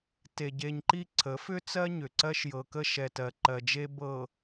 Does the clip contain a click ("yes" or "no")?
yes